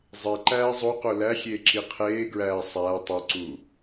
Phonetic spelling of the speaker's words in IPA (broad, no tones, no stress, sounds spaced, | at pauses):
zˤ e ǃ æː zˤ o q o l æ xʲ eː ǁ i qʰ eː ɡ ɹ æː sˤ æː tˤ o ǀ uː